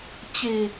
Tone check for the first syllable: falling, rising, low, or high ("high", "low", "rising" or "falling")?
low